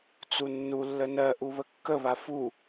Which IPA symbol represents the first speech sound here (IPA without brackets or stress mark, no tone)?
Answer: t͡s